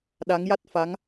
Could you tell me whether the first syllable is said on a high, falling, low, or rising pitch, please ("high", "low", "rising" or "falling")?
rising